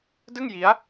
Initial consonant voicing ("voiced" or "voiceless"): voiced